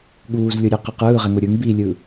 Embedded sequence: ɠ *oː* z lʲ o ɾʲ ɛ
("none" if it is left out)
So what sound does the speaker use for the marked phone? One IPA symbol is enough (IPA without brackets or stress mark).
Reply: uː